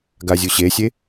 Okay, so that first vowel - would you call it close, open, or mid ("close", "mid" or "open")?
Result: open